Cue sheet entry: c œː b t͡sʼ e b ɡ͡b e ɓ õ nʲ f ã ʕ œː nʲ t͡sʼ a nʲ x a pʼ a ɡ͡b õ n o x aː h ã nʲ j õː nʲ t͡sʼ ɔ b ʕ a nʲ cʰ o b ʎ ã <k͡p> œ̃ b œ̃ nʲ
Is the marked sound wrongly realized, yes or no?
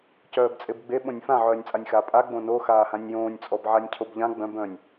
yes